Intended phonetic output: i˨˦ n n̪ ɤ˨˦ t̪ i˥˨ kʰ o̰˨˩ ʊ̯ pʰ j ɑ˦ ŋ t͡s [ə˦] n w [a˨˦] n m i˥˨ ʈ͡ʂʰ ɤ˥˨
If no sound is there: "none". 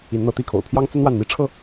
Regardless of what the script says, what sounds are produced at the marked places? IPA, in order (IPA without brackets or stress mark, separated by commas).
ə˦, a˥˨